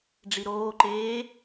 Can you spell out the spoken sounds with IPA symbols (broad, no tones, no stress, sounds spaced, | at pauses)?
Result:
ɖ͡ʐ i ɾ oː ǃ eː